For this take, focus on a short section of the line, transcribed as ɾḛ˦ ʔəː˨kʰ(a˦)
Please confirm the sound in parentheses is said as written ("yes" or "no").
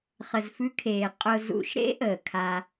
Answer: yes